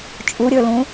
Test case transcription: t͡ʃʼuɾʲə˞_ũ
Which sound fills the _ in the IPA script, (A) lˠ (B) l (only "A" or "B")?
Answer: B